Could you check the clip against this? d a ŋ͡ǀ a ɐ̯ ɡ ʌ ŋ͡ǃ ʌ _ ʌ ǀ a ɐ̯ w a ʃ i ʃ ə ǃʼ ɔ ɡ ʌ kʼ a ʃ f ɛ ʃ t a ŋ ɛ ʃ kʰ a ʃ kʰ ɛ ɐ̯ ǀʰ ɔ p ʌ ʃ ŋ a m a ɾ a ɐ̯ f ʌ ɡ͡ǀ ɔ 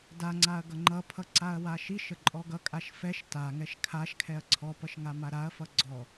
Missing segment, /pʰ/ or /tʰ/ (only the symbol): pʰ